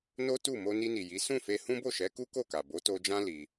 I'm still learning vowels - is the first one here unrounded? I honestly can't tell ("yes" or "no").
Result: no